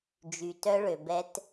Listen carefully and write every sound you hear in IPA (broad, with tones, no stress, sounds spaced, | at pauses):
d͡ʒ y˨ t œ˦ ɭ ø˨ b ɛ˦ t